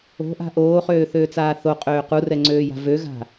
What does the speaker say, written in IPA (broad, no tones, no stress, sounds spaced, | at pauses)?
o̤ ʔ a̤ ʔ oː χ øː θ øː t͡s aː θ o qʼ øː q u r ɛ ŋ͡ǀ øː j a̤ v ø ɣ a̤